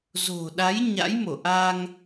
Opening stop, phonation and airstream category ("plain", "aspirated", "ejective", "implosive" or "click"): implosive